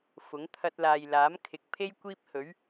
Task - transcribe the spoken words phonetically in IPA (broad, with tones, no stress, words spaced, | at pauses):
fʊ˨˥ŋ t̪ʰɐ˧t̚laː˨jlaː˨˥m kʰɪ˨˥k̚pʰe˥j kʷiː˥p̚ hɵ˨˥ɥ